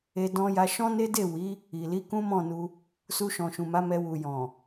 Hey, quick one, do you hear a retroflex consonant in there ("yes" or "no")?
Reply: no